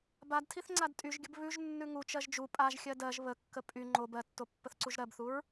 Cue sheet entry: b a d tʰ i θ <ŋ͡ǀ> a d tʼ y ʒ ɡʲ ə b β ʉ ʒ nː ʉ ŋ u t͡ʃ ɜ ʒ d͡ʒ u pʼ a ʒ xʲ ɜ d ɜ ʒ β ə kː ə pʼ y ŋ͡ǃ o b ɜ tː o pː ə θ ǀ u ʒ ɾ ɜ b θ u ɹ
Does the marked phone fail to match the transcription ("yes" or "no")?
no